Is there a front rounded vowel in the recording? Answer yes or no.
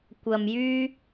yes